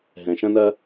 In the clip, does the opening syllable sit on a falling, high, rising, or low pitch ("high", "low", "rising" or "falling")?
low